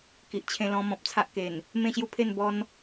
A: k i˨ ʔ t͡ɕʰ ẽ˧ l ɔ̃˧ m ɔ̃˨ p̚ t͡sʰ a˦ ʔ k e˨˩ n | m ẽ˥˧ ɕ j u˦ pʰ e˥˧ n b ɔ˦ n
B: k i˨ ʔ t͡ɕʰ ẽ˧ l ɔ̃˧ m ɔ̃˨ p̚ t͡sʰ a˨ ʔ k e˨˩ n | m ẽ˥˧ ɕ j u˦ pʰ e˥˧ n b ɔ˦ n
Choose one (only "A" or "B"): A